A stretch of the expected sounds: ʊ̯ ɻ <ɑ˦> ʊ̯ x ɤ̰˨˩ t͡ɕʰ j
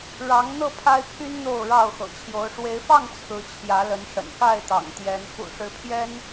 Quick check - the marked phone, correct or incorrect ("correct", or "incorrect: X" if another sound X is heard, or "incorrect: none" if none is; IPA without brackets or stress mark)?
incorrect: ɑ˥˨